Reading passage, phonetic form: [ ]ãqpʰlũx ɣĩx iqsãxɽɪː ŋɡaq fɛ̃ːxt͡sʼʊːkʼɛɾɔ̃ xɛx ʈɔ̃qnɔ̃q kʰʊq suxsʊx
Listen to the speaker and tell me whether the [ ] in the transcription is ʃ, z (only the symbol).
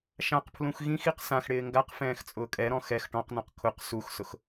ʃ